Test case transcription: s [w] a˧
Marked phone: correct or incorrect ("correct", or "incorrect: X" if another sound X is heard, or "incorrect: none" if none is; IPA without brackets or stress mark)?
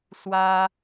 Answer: correct